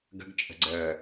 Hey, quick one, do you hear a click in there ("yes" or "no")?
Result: yes